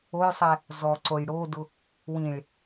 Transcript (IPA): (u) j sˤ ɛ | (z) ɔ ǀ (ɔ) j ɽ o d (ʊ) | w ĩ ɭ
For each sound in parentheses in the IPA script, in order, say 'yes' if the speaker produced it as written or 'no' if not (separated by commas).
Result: no, yes, no, yes